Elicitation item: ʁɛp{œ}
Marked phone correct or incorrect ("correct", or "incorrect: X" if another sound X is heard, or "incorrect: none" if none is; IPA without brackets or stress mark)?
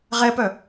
correct